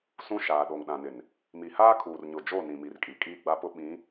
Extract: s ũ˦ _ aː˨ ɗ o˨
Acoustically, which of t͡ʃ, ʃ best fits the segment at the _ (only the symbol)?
ʃ